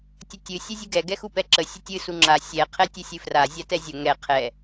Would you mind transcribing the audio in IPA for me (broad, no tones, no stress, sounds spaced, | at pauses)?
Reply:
tʲ ə tʲ ɨ sʲ ɨ zʲ ɨ ɡ ɛ ɡ ɛ x u p ɛ ǁ ə sʲ ə tʲ ɨ s u ŋ͡ǁ a sʲ ɛ qʰ ɛ tʲ ɨ sʲ ɨ f r a zʲ a t ɛ zʲ ə ŋ ɛ qʰ ɛ